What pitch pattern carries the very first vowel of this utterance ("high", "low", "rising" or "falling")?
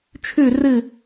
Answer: falling